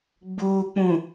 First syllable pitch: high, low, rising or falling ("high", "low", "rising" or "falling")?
low